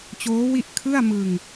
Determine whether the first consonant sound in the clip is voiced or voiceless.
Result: voiceless